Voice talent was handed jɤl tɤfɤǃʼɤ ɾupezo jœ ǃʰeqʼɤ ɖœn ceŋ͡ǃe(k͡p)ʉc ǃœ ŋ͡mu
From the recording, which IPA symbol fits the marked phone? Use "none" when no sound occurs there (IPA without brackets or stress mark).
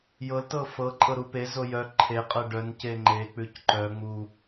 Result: k͡p